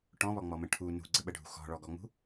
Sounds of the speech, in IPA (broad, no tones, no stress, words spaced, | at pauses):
ʈɔ̃βɔŋ͡mɔmə̃ ʈʰu nṳɡ͡ǀəɓəɖʱṳ xɔ̤ɭɔɡɔŋ͡mṳ